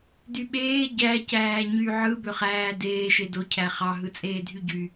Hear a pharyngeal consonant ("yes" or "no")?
yes